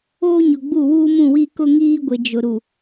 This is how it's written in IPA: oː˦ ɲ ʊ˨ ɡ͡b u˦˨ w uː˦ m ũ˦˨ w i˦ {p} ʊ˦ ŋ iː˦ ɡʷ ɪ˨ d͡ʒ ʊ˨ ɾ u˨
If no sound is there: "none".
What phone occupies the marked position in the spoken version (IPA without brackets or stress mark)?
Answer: k